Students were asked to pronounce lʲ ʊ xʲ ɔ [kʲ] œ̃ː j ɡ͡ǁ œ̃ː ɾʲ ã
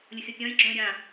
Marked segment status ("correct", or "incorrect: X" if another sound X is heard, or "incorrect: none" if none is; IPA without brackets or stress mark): correct